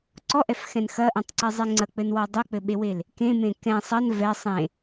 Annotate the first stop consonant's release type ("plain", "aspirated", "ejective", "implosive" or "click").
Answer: click